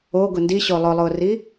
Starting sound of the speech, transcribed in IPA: o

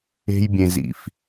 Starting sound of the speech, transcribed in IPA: e̤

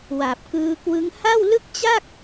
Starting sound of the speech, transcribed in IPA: w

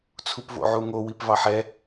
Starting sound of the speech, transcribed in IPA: t͡sʰ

